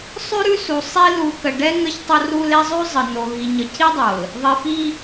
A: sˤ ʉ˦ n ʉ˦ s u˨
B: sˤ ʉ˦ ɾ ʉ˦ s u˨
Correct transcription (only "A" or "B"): B